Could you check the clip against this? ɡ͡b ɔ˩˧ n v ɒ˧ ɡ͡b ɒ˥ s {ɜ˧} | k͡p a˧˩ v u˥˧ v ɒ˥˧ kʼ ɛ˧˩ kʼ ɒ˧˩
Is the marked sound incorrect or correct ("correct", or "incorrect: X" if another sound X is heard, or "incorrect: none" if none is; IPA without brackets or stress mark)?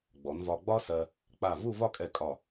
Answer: correct